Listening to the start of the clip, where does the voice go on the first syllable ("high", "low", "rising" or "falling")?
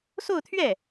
falling